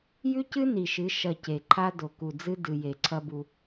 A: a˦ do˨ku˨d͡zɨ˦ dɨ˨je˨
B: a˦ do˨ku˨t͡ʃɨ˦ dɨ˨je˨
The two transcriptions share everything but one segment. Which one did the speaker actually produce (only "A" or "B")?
A